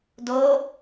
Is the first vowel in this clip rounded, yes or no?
yes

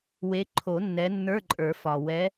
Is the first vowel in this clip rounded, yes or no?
no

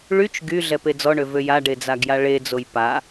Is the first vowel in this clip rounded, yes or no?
yes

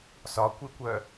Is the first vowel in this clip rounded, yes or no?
yes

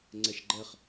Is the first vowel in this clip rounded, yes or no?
no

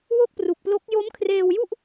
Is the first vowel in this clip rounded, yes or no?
yes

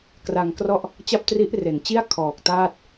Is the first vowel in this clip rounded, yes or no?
no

